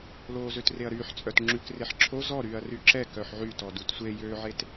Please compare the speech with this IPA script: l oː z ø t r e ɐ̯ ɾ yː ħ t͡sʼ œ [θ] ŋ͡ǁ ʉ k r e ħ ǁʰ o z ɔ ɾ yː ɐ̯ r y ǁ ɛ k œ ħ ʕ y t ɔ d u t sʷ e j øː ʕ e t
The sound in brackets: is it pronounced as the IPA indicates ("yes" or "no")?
no